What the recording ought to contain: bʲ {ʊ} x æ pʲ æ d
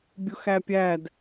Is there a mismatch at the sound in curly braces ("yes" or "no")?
no